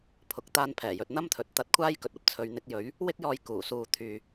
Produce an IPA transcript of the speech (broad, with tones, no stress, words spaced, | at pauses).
pʰʊ˨k̚ t̪aː˧npʰɛː˨˩jɵ˨t̚ n̪ɐ˥mt̪ʰɵ˨˥t̚ t̪ɐ˧t̚kʷʰaː˥j kɵ˧t̚ɐ˧p̚ t͡sʰɵ˨˧ɥn̪ɪ˧k̚jɵ˨˥ɥ | wɪ˥k̚jɔː˧j kuː˨˩suː˧t̪ʰyː˨